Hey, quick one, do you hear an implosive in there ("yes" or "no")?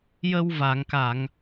no